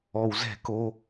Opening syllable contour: low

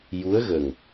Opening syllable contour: rising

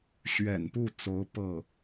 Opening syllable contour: low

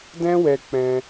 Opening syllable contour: high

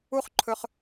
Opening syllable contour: high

